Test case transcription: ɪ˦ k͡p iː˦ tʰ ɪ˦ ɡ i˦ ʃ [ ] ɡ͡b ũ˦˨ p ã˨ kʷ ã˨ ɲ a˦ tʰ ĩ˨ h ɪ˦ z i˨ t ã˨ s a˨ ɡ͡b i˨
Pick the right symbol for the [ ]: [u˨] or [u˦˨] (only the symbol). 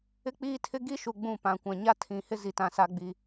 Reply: u˨